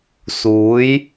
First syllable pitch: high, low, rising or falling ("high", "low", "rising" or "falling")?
rising